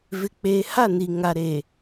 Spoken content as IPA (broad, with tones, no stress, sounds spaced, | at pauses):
v ɪ˨ k͡p eː˨ h a˦˨ n i˨ ŋ a˨ ɾ e˨